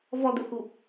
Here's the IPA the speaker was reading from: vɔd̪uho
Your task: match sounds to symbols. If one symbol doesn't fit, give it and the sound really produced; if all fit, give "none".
o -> u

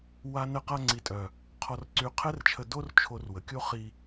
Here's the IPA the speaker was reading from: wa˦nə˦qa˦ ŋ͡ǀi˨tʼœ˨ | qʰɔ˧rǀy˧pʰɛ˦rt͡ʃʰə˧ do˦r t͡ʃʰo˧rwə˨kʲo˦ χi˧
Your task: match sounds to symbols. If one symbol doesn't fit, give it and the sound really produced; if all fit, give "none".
pʰ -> qʰ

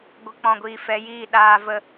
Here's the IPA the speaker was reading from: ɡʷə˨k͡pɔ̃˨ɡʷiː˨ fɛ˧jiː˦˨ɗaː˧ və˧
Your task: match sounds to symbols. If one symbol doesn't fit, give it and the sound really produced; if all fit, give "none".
none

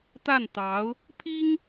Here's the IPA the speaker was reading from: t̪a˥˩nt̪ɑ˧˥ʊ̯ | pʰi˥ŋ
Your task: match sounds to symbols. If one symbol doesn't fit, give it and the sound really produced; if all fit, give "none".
none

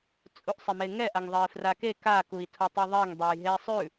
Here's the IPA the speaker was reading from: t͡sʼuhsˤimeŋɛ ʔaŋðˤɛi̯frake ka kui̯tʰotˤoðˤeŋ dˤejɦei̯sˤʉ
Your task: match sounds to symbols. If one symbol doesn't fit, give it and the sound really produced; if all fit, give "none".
h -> ʔ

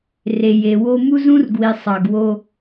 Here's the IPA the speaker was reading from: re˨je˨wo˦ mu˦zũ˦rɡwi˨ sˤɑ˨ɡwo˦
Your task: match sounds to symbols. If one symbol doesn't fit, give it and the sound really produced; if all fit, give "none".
none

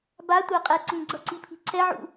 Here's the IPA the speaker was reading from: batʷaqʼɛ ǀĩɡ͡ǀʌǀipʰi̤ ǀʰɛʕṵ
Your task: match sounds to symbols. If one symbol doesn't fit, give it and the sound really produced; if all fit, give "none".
none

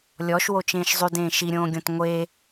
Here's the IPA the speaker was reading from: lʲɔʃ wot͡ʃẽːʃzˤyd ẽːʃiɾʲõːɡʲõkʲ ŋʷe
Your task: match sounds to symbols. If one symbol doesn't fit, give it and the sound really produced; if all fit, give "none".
kʲ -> t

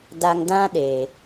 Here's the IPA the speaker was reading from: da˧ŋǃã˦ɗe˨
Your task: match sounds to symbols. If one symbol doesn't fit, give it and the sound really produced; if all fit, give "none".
ǃ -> d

